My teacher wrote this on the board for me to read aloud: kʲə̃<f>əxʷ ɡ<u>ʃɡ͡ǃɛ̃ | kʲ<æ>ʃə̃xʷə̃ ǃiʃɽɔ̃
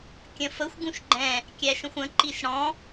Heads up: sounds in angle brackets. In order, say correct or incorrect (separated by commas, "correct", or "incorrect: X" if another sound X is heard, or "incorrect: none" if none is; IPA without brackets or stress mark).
correct, incorrect: ũ, correct